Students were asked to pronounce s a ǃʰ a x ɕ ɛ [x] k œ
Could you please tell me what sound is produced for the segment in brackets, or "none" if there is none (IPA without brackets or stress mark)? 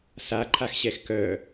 x